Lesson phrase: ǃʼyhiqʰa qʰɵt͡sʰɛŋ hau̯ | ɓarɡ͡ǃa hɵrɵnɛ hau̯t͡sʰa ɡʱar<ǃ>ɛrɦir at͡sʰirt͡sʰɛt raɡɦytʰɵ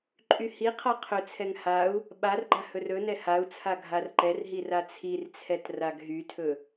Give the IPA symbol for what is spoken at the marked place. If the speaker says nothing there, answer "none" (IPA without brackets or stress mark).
ǃ